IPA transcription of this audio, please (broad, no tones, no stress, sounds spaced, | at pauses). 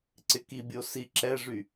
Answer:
ǀ ɪ k i bʲ o s i ǁ ɛ ʐ y